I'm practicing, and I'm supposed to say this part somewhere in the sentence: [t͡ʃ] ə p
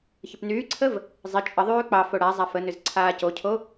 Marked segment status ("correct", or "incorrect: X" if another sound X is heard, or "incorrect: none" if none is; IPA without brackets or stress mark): incorrect: ç